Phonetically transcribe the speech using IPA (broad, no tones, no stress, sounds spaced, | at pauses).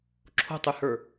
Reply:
ǁʰ o̤ tˤ y h ə˞